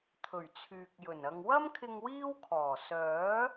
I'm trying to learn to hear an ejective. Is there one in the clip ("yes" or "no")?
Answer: no